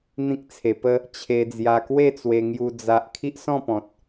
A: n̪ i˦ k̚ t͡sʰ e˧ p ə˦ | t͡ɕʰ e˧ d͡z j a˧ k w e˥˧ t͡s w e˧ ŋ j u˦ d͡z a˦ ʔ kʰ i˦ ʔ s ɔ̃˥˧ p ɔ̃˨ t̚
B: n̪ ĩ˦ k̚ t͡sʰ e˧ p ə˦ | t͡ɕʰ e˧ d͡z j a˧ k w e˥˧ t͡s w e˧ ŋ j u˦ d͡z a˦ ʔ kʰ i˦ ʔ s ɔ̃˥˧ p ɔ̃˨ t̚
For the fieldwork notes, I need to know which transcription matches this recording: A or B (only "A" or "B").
B